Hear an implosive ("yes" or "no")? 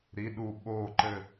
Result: yes